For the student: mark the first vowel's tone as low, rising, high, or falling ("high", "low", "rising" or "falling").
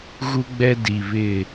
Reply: high